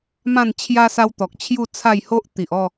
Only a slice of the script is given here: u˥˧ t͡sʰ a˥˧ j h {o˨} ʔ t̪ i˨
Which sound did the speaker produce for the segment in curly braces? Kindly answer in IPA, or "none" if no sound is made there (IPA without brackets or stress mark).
o˦